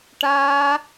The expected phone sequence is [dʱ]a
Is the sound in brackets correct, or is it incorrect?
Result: incorrect: ʈ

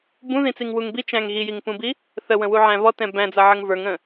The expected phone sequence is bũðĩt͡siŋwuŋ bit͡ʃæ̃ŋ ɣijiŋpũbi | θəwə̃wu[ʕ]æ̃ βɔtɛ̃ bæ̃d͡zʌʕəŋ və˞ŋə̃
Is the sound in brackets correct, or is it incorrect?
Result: correct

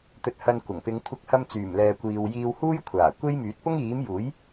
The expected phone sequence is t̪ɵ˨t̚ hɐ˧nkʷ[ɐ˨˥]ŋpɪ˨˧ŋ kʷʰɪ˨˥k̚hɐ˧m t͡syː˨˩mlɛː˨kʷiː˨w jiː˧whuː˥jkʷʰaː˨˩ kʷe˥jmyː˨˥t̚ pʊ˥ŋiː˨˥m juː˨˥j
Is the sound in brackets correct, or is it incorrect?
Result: incorrect: ɐ˨˩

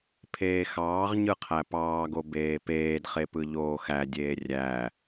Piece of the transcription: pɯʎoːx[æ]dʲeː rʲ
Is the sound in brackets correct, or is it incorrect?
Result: correct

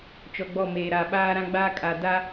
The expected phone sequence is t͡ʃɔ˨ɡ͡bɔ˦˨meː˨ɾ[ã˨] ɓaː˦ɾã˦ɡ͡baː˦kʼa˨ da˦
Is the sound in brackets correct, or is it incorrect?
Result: incorrect: a˨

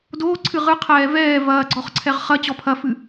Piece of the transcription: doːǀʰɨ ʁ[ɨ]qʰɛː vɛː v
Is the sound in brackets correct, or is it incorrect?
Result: correct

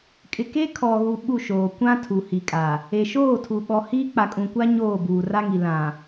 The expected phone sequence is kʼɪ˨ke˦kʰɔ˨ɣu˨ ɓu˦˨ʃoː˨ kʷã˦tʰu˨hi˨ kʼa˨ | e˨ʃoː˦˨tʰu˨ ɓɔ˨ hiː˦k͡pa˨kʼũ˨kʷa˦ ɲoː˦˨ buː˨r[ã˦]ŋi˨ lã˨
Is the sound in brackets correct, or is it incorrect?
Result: incorrect: a˦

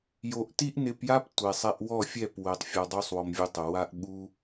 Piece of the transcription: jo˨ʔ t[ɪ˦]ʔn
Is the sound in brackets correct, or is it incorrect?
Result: incorrect: i˦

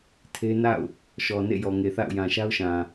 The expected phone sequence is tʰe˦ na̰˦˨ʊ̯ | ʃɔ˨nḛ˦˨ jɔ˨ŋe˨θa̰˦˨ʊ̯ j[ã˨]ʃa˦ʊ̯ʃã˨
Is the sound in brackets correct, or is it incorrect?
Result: correct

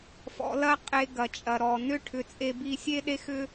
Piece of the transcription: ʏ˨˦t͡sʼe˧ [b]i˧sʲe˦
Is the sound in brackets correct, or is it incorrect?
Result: correct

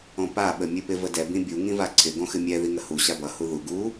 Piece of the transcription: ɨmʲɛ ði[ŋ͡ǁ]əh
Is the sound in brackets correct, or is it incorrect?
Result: incorrect: ŋ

